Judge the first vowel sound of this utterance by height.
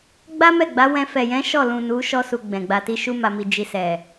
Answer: low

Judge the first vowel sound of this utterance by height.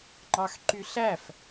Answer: low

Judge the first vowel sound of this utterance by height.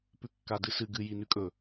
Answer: high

